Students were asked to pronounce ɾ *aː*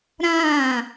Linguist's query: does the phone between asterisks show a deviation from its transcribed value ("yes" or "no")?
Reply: yes